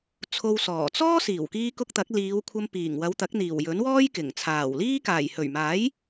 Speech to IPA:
t͡sʰ o˧ w s ɔː˨˩ t͡s ɔː˥ s iː˨˩ w k iː˧ k ʊ˧ k̚ t̪ ɐ˨˥ k̚ l iː˨˧ w kʷʰ ɐ˧ m p iː˨˩ ŋ w ɐ˨˧ w t̪ ɐ˨˥ k̚ n̪ iː˨˩ w j ɵ˨˥ n w ɔː˥ j k ɪ˨˩ ŋ t͡sʰ aː˨˩ w l iː˥ k aː˨˩ j h ɵ˨˩ ɥ m aː˨˥ j

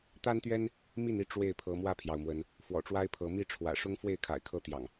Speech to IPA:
t̪ a˦ n t̪ ɥ ɛ˦ n | m i˥˨ n i˥˨ ʈ͡ʂ w e˥˨ ɪ̯ pʰ ɤ˨˦ m w ä˥˨ pʰ j ɑ˩ ʊ̯ m w ə˨˦ n | f w ɔ̰˨˩ ʈ͡ʂ w a˦ ɪ̯ pʰ ɤ˨˦ m i˥˨ ʈ͡ʂʰ w ä̰˨˩ ʂ ʊ˦ ŋ f w e˥˨ ɪ̯ kʰ a̰˨˩ ɪ̯ kʰ ɤ˦ t̪ j ɑ̰˨˩ ŋ

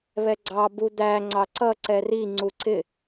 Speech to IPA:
β ɛ ɡ͡ǀ ɑ b u d̪ æ ŋ͡ǀ ɑ ǀ ʌ ǀ ɛ r i ŋ͡ǀ u ǀ ɪ

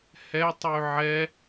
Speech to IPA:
h ɛ tˤ y ʕ ɛ

